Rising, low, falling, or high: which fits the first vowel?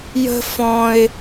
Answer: high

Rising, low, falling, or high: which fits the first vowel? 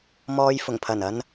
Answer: low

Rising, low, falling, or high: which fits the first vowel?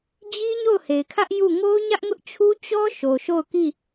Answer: high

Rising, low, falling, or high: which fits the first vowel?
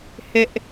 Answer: high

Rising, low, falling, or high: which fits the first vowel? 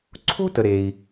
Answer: high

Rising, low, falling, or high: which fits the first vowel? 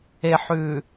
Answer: low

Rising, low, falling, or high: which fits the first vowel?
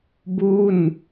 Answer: falling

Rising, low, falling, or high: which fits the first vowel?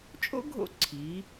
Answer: high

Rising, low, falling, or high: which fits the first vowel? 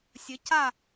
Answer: rising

